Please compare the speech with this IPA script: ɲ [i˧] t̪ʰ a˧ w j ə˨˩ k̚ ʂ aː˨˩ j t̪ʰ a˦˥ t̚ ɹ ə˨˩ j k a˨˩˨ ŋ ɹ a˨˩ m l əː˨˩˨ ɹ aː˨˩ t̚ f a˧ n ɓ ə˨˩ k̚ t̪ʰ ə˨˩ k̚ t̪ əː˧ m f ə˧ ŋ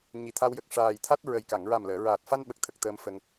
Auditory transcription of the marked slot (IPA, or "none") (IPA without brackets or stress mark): i˨˩